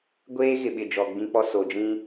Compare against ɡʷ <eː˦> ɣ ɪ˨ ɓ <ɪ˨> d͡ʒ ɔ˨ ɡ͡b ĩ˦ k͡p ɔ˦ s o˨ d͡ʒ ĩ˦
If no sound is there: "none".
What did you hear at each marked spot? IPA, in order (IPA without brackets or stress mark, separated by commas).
eː˦, ɪ˨